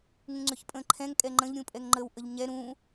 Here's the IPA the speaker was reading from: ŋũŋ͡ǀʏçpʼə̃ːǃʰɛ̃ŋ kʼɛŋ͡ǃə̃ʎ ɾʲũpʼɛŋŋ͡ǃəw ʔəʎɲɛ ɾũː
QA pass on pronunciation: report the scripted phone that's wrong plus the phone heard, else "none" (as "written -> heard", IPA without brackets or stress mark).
none